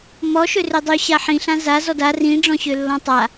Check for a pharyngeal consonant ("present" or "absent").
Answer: present